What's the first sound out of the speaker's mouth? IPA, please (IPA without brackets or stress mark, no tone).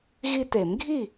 ɣ